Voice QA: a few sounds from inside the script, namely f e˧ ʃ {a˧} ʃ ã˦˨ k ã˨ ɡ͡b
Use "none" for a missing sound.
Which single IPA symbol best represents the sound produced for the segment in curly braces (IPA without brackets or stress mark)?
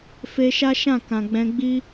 a˦